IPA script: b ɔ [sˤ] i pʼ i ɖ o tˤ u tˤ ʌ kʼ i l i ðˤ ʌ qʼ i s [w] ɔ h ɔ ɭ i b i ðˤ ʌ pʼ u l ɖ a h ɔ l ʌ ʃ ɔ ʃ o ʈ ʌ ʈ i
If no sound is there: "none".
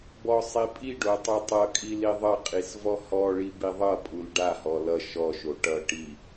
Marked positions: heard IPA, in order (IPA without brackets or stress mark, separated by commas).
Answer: sˤ, v